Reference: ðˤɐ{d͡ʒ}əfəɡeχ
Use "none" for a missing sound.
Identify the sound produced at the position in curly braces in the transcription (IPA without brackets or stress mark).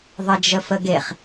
d͡ʒ